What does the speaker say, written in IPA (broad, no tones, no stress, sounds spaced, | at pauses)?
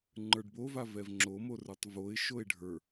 ŋ͡ǃ ə˞ ɖ b o v a v ɛ v ŋ͡ǁ o m o r ə˞ tˤ v o ɪ̯ ʃ o ɪ̯ ɖʱ ə˞